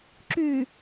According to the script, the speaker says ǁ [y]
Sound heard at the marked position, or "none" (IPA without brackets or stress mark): y